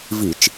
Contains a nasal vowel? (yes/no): no